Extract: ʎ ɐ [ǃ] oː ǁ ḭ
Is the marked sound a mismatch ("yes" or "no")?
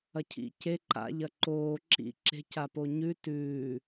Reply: no